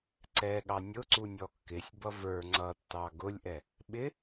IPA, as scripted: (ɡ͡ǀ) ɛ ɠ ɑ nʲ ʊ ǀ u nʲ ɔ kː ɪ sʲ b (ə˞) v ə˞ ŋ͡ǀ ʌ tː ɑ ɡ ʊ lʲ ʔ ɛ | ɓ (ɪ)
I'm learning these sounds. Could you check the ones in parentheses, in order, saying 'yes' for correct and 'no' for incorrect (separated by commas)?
no, no, yes